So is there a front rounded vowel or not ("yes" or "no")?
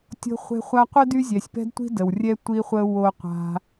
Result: yes